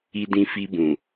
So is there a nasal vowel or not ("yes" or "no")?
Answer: yes